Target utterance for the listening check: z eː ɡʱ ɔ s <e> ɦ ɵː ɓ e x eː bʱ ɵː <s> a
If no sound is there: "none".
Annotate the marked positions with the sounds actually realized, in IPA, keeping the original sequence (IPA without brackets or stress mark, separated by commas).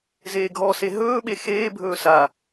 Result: e, s